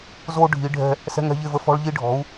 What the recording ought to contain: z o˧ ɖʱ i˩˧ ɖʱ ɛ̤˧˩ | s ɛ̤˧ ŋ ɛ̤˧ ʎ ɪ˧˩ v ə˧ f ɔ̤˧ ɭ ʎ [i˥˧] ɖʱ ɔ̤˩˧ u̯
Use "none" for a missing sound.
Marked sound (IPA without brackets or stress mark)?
i˧